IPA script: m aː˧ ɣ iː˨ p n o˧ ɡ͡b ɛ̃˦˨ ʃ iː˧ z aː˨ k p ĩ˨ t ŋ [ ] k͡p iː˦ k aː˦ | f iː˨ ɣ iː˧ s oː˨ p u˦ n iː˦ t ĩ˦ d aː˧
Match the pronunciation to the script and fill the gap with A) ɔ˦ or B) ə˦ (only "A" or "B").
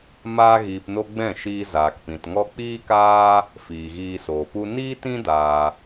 A